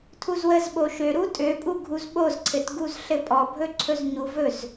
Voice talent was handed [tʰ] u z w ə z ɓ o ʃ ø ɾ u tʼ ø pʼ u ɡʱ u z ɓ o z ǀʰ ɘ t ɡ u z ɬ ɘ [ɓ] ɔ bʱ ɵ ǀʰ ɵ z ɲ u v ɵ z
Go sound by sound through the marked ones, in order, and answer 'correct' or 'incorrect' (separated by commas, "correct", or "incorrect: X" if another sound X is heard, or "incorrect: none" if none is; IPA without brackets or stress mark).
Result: correct, incorrect: pʼ